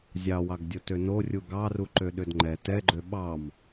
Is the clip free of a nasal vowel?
yes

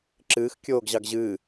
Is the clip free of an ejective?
yes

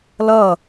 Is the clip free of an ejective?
yes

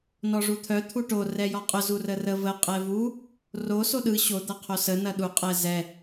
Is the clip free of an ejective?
no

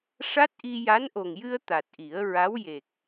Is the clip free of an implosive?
yes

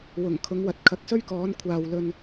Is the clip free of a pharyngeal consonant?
yes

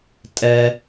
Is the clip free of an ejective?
no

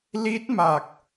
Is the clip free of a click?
yes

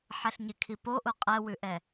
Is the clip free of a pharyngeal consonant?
no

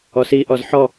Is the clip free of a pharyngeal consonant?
no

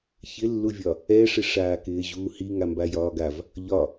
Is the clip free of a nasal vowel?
yes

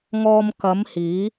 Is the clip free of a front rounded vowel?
yes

